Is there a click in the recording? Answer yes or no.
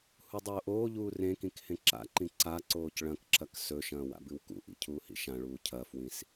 yes